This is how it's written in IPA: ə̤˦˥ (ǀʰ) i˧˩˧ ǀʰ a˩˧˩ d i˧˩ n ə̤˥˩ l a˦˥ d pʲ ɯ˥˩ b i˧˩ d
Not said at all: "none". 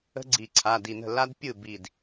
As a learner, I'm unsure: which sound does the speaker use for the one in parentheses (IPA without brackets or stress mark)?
ɡ͡ǀ